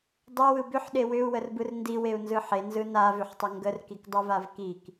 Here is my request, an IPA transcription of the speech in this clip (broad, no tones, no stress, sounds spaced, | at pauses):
dˤ ʏ w ɯ b ʏ ħ ɗ e w ʏ u̯ w ə r b ɯ r n d i w e u̯ n z ɯ ħ e n z ɯ n a v ʏ ħ tˤ ə ŋ ɡ ə r k i k dˤ ɯ v a v k i k